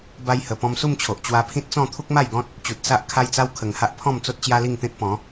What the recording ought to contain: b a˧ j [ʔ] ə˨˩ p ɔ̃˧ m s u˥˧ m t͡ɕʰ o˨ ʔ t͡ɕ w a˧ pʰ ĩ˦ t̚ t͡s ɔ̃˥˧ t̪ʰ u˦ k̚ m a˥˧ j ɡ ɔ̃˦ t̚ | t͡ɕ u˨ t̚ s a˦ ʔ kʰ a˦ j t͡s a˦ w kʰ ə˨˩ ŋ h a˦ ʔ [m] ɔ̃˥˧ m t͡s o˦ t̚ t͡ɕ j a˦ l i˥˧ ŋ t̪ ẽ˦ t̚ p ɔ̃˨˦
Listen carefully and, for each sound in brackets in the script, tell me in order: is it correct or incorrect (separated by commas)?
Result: incorrect, incorrect